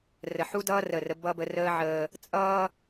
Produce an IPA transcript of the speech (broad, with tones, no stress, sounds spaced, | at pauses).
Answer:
r ə˨ ħ u˦ d ʌː˦ r ə˦˨ r ə˦ b ʌ˦ b ə˦ r əː˦ ʕ əː˦ | t͡sʼ ʌː˦